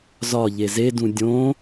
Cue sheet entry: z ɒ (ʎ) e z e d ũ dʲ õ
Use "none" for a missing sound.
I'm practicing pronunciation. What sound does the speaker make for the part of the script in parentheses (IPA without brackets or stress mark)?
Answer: ʎ